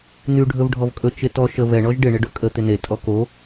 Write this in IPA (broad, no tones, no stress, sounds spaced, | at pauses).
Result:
n̪ y ɖʱ ɵ v ɖʱ ɔ v kʼ ɵ t͡ʃ ɪ t ɔ ʃ ə v ɛ ɳ ɔ ʒ ɖ ɪ ɳ ɪ ɖ ɵ kʼ ə t̪ ɪ n e tʼ ɔ k o